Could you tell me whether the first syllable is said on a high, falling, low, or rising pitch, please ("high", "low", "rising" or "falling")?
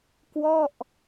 falling